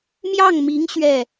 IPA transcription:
m j ɑ˥˩ ŋ m i˧˥ ŋ ɕ ɥ ɛ˥˩

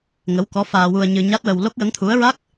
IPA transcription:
ŋ ə˧˥ w k ɔ˧˥ f aː˧ w u˧ ə̯ ɲ ɨ˧ ɲ a˦˥ t̚ w ə˧ w l o˦˥ k̚ j ə˧˥ ŋ t̪ʰ u˧˥ ə̯ ɹ a˦˥ k̚

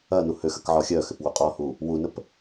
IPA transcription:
ɐ n u h ø x ɐ k ʕ ɔ xʲ œ x ʏ p w u qʼ ɔ h u | w u n ə p

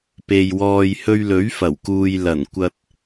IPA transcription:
p e˨ j w ɔː˨ j h ɵ˧ ɥ l ɵ˨˥ ɥ f ɐ˨˩ w k uː˨ j l ɐ˨˩ n kʷ ɐ˨ t̚

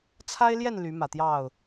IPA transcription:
t͡sʰ a˦ ɪ̯ l j ɛ˥˨ n l y˨˦ m ä˨˩ t̪ j ɑ˥˨ ʊ̯

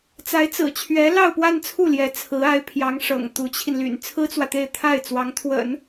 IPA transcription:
t͡s a˧˥ ɪ̯ t͡s ɹ̩˨˩ t͡ɕʰ ɥ ɛ˧˥ l ɑ˥˧ ʊ̯ p w a˥˧ n t͡sʰ u˥˩ l j ɛ˧˥ t͡sʰ ɹ̩˧˥ a˧˥ ɪ̯ pʰ j ɑ˧˥ ŋ ʂ ɤ̰˨˩ ŋ t̪ u˧˥ t͡ɕʰ i˧ n l y̰˨˩ n t͡sʰ ɹ̩˥ t͡s w ä˨ t̪ e˥˧ ɪ̯ t̪ʰ a˥˩ ɪ̯ t͡s w ɑ˧˥ ŋ t̪ʰ w ə̰˨˩˦ n

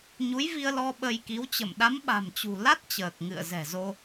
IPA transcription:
ɲ u˨˦ j v i˧ ə̯ l ɔ˧ ɓ ə˧ j k i˨˦ w t͡ɕ ə̰˧˨ m ɗ a˨˦ m ɓ a̤˨˩ m t͡ɕ ṳ˨˩ l a˦˥ t̚ t͡ɕ əː˨˩ k̚ ŋ ɨ̰˧˨ ə̯ z ɛ̤˨˩ z o˧

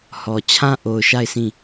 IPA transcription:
h ɔ˨ t͡ɕʰ ã˦ ʔ o˨ ʊ̯ ʃ a˦˨ ɪ̯ sʰ ĩ˦˨

